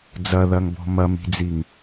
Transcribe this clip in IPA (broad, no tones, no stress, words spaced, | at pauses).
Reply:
d͡zɐðɐŋbɔ̤ mɐmi̤d͡ziŋ